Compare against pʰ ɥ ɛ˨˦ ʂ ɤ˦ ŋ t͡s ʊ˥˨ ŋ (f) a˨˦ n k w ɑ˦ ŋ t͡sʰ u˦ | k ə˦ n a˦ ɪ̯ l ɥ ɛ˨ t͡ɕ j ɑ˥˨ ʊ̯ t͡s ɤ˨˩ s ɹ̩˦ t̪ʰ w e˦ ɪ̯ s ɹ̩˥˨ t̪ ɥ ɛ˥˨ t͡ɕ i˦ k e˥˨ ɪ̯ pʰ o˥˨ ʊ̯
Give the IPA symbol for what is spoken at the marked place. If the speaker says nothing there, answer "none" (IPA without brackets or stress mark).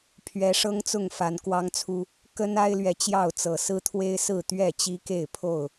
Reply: f